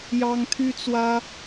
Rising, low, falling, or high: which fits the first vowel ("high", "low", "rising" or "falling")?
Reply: high